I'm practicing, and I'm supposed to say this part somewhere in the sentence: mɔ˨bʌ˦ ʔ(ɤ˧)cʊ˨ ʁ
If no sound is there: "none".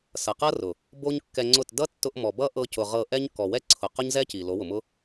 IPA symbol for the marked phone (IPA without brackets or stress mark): ɤ˧